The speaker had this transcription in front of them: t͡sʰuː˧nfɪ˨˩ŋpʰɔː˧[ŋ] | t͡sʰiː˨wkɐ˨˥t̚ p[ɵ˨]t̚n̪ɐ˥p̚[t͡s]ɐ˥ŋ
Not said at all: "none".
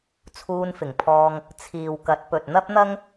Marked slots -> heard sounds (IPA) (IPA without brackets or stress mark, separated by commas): ŋ, ɵ˨, n̪